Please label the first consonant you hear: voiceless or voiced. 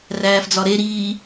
voiced